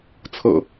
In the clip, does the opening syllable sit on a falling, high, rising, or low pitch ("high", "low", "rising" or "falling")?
low